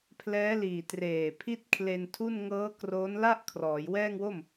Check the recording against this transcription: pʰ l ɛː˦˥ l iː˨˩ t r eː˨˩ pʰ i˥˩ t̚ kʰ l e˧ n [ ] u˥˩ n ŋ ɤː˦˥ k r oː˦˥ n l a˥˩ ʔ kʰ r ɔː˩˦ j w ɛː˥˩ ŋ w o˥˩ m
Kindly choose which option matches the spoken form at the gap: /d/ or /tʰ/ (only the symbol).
tʰ